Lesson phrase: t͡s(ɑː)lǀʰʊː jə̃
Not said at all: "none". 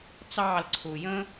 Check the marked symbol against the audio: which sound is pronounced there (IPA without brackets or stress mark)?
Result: ɑː